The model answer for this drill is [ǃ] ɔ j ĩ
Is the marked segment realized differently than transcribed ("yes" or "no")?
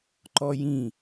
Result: no